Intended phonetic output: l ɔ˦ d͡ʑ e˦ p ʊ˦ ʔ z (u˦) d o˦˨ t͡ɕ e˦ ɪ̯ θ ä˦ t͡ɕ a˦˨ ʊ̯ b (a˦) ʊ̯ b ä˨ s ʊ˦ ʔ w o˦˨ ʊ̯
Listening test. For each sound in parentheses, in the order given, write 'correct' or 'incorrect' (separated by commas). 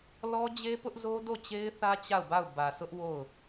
incorrect, incorrect